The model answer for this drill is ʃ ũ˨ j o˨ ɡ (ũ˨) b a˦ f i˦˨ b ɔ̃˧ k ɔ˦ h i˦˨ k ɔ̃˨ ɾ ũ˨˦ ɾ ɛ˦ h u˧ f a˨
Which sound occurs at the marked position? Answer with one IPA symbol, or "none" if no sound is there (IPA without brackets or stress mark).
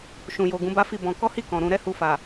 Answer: ũ˨˦